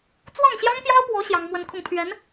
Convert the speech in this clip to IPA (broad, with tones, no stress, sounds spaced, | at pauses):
t͡s w ɑ˥˩ ŋ ɕ j ɑ˥ ŋ p j ɑ˥ ʊ̯ p w ɔ˧˥ ɕ j ɑ˥ ŋ m w ə˥ n kʰ ʊ˥˩ ŋ pʰ ɥ ɛ˧˥ n